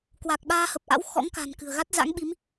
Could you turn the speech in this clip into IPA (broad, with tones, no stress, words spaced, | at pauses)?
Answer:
kwa˨˩k̚ɓaː˧hə˨˩p̚ʔa̰˧˥w xɔ̰˧˥ŋka̤˨˩n kɨ̤˨˩ə̯ɣa˦˥t̚ za̰˧˥ŋɓi˨˦m